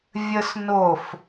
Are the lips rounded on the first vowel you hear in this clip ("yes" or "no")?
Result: no